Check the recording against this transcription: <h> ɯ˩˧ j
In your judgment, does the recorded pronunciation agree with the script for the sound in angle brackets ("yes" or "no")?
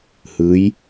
yes